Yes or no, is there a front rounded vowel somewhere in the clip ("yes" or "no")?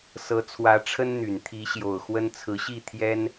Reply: yes